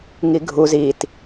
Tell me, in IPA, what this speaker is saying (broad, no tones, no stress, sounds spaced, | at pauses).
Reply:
ŋ i ɡʱ u z i t